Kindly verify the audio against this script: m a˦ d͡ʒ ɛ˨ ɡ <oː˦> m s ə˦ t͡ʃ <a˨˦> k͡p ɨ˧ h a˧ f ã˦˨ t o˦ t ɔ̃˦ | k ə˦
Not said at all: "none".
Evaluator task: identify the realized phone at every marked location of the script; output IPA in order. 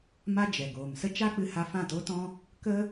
oː˨, a˦

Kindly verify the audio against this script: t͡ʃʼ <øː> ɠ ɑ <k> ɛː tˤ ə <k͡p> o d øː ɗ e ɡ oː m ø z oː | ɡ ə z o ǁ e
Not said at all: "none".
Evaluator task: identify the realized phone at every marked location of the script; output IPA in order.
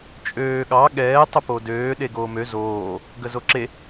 øː, ɠ, p

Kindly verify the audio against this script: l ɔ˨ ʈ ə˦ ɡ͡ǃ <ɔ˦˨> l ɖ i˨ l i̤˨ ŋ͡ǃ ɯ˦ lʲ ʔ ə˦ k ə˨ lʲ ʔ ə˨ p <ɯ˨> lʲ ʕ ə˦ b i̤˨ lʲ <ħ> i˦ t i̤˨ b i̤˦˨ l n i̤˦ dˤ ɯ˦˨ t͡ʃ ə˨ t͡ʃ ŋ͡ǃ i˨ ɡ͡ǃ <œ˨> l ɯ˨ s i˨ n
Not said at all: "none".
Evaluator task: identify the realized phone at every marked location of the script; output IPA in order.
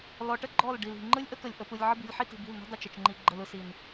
ɔ˦˨, ɯ˨, ħ, ə˨

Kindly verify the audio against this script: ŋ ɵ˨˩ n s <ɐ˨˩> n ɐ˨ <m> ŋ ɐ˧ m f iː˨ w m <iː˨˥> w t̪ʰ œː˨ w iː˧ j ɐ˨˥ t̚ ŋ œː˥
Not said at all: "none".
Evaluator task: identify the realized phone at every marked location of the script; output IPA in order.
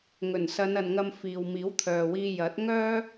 ɐ˨˧, n, iː˨˥

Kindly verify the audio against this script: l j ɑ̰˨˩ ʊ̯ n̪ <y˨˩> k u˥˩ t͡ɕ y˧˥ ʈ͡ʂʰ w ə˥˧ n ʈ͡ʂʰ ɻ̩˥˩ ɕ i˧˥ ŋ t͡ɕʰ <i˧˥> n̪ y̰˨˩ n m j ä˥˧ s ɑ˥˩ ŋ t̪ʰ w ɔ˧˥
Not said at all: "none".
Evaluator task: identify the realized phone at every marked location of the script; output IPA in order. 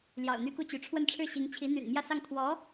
y˥, i˧˥

